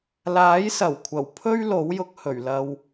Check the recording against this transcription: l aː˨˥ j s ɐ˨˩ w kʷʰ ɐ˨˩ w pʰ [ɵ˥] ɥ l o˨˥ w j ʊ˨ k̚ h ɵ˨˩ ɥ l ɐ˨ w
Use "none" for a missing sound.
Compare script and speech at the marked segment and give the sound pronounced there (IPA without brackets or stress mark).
ɵ˥